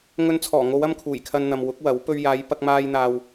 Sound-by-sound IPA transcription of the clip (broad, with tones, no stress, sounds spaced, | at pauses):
ŋ ɵ˧ n t͡sʰ ɔː˨˩ ŋ o˨˧ w ɐ˥ m kʰ uː˨˩ j kʰ ɐ˧ n n̪ ɐ˨ m w ʊ˨˥ k̚ w ɐ˨˥ w p ɵ˧ ɥ j aː˨˧ j p ɐ˧ k̚ m aː˧ j n̪ aː˨ w